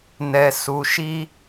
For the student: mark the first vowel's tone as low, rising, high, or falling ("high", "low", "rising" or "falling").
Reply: low